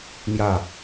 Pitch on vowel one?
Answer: falling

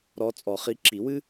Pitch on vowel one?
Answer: rising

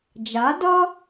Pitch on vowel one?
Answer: rising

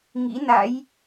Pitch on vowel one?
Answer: rising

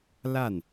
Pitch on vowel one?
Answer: falling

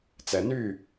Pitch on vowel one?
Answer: low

